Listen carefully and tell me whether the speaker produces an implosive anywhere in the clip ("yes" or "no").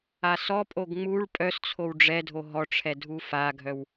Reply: no